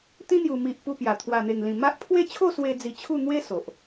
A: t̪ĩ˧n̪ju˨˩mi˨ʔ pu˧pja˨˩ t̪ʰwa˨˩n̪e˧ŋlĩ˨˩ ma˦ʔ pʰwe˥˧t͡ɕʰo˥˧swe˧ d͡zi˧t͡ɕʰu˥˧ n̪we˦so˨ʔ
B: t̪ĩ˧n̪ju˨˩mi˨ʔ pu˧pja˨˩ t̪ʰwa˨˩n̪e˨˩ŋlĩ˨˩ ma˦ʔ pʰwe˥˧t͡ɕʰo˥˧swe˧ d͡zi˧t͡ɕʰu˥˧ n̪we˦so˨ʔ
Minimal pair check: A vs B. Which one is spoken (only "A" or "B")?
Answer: B